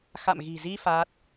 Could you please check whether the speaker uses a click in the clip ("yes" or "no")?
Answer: no